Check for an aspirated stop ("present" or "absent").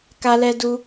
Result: absent